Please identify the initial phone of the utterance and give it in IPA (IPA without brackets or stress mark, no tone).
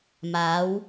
m